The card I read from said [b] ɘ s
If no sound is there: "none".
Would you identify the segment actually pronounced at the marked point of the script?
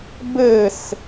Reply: b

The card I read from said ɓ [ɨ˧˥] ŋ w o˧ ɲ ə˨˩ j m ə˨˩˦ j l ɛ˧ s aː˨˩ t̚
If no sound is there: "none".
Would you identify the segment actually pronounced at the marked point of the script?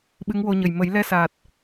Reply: ɨ˧˥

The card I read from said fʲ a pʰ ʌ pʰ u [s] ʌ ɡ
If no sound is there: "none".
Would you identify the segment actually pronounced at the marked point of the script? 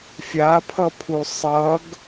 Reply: sˤ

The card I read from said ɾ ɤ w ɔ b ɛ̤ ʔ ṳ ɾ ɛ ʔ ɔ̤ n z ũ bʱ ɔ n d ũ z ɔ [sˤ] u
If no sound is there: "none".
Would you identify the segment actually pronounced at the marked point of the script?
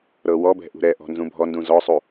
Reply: sˤ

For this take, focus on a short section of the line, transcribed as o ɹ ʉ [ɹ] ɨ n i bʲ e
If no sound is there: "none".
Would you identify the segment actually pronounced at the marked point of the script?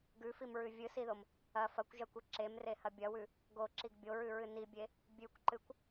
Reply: ɹ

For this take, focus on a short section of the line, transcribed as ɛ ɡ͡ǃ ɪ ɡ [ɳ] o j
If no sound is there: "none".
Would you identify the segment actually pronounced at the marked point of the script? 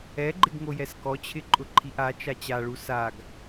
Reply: ŋ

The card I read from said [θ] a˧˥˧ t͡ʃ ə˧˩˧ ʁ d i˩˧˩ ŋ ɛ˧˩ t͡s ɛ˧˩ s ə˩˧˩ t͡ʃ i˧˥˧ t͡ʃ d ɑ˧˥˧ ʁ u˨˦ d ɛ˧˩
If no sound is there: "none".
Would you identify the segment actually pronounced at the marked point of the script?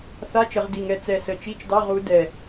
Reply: θ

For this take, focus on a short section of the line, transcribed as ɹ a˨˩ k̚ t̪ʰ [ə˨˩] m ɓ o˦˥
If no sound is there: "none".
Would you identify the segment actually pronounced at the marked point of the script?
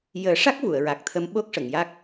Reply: ə˧˥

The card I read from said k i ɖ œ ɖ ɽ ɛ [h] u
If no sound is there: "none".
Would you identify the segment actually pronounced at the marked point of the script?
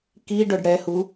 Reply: h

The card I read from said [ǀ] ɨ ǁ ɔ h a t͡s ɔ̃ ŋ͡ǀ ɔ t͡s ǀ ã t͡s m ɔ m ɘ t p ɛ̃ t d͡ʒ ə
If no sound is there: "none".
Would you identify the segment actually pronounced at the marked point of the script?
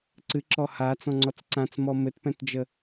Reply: ǀ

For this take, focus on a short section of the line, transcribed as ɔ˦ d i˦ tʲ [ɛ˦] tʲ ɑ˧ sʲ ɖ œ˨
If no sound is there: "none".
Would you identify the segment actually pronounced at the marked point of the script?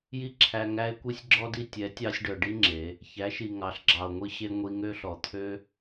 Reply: ɛ˨˦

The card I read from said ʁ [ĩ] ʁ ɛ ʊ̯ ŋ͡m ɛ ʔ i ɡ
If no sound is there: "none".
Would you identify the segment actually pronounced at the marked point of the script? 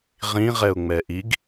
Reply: ĩ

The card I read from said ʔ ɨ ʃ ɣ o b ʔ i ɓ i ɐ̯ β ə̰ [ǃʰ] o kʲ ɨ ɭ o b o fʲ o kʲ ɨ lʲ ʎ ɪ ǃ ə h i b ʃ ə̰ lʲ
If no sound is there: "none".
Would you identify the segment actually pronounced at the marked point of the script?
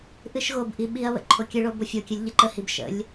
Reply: ǃʰ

